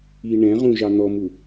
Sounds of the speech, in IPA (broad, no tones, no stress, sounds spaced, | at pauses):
i ɳ ɛ̃ ʁ ũ ʒ ɑ n̪ ɔ m u